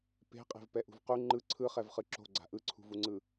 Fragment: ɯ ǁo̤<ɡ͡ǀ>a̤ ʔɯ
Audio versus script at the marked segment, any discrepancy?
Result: no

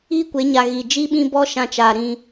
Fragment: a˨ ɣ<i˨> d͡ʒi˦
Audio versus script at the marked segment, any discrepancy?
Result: no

